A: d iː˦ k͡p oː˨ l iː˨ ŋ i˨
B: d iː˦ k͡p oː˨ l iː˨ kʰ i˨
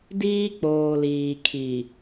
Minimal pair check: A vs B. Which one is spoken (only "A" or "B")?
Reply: B